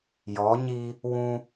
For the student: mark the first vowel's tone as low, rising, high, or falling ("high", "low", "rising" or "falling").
rising